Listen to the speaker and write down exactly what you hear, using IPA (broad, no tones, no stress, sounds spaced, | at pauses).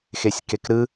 x e sʲ k e k ɾ ɯ